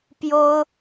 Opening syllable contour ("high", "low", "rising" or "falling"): high